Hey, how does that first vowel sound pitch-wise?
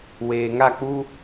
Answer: low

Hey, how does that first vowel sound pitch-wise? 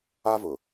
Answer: high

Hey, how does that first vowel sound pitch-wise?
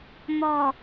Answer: low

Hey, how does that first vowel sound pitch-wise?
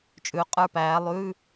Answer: rising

